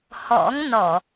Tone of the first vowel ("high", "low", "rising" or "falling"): rising